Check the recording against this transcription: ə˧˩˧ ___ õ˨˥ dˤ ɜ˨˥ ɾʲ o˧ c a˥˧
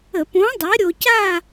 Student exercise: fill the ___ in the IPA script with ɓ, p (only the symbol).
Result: p